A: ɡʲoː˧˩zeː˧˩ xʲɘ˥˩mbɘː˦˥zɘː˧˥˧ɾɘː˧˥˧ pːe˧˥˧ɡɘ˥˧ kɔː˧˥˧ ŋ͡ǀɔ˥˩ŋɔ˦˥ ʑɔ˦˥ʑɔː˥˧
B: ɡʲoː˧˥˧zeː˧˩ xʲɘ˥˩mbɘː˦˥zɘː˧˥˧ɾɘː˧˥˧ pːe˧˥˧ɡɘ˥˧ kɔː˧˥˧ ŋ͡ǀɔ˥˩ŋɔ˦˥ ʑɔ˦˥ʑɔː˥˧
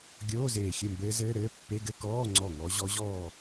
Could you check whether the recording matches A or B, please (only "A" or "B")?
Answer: B